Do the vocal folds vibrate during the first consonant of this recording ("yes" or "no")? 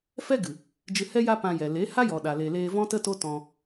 no